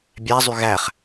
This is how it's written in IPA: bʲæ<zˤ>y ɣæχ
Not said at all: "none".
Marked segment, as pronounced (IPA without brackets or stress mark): zˤ